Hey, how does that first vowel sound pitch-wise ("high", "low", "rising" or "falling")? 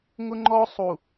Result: high